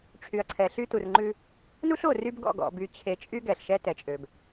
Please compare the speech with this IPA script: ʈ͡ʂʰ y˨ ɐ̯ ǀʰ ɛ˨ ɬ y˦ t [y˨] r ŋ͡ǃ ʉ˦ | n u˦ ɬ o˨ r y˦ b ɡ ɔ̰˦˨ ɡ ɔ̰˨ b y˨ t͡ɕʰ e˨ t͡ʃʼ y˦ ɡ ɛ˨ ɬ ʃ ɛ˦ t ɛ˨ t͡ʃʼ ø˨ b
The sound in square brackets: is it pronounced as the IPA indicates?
no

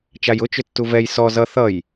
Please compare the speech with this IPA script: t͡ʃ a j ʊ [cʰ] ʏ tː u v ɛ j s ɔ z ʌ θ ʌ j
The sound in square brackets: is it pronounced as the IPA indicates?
no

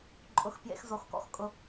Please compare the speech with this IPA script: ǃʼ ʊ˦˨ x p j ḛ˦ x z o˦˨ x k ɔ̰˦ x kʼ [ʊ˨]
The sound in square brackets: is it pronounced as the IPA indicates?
no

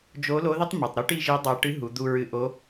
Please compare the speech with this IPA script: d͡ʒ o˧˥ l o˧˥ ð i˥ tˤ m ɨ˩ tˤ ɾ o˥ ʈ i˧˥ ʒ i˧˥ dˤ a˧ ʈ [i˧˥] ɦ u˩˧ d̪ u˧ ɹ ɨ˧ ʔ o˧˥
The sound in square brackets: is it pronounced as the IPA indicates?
no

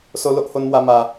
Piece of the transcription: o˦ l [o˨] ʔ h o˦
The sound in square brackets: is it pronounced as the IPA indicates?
no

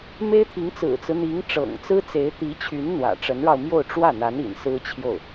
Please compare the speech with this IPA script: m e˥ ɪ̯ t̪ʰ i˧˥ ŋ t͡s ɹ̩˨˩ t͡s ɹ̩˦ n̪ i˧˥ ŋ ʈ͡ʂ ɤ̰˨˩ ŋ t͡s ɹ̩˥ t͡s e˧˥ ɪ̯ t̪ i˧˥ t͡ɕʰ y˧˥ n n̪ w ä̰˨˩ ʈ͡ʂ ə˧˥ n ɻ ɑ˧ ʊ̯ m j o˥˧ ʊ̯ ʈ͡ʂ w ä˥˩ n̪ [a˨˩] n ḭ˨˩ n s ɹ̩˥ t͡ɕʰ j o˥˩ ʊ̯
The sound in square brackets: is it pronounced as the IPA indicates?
no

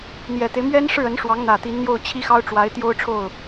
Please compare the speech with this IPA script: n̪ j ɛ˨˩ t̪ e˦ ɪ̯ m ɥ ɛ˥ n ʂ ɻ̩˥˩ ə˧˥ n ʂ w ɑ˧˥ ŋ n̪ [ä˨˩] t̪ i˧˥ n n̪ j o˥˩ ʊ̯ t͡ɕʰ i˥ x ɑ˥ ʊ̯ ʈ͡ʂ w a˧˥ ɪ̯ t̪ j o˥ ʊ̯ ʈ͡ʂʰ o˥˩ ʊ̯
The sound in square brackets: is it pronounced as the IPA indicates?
yes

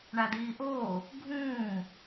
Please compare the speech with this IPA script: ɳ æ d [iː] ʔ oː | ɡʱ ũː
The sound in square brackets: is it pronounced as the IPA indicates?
yes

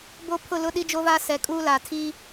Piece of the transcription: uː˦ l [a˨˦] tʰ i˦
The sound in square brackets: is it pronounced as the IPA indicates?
no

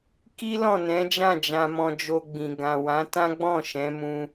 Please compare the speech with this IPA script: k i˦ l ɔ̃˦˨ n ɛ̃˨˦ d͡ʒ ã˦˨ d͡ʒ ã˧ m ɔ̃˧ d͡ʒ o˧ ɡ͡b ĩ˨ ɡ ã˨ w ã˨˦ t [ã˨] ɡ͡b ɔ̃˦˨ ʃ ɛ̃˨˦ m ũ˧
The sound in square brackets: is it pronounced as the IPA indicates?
no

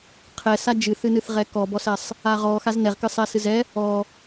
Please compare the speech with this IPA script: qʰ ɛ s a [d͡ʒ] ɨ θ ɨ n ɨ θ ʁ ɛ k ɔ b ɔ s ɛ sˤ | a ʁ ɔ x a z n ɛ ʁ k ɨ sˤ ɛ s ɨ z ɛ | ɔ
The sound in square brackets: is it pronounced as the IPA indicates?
yes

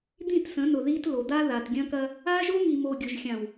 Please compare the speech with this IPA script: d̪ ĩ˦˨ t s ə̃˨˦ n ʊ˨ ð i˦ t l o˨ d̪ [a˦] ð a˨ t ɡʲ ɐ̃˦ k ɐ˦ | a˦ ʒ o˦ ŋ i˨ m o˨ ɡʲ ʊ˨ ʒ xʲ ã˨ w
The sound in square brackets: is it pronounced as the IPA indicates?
yes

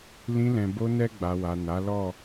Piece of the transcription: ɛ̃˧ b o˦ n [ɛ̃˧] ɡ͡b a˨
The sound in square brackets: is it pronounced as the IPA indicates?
no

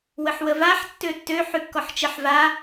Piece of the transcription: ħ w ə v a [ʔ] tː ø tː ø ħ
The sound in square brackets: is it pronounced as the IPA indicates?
no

